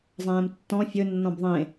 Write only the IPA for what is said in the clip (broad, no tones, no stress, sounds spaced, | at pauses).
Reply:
zˤ ɛ̃ː m tː ɔ̃ fʲ ɵ nː ɔ̃ b ðˤ ẽ